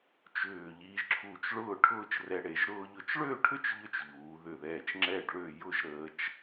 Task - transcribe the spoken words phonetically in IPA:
t͡ʃʏː˧˩ʎiː˧ʒ ǁʰuː˧˩t͡ʃ ɭʊː˥˧ʈʰʊː˥˧t͡ʃrɛ˧ɽe˩˧ʒ ɾʊː˧ʎʊ˧˩t͡ʃɭø˥˧ʈʰʏ˥t͡ʃ ʎʏ˥t͡ʃʎuː˩˧ðʏ˧˩ðɛː˧˩t͡ʃ ŋ͡ǁɛ˥˧ɖɭø˥˧ jʊ˥˧ʒɾəː˧t͡ʃ

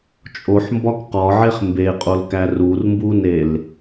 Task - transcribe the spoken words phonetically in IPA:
t͡ʃʼoħmbɒk qɒʕeχ mbeqʼolkæ rurmbunel

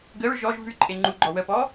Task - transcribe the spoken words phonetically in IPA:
ɡəɹ ʒɔʒ vʉǃʼe ŋ͡ǃu ɡ͡ǃɔwəpɔ

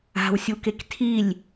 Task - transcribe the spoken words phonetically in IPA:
a̤wsʲukek tʰilʲ

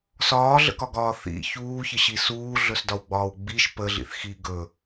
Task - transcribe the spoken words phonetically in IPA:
sɒːɮə̰kɒɡɒː θḭ çuːçəɕi suːɮɵsdɒwɡ͡bɒːw ɡ͡biʃ pəɮḭθxiː ɡɵ

